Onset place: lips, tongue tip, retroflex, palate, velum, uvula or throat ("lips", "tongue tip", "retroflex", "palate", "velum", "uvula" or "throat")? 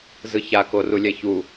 tongue tip